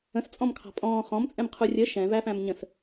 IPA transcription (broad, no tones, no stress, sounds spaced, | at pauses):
ə̃ s t͡sʼ ɔ̃ m kʰ ɑ̤ pʼ ɔ̃ː χ ɔ̃ m t͡sʼ ɛ̃ m qʰ u rʲ ə ʃ ɛ̃ v æ f æ̃ m ɲ ə̃ s